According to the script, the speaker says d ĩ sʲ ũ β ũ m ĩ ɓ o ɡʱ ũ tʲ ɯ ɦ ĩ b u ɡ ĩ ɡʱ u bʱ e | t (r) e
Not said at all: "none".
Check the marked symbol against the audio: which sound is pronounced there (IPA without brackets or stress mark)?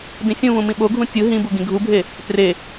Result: r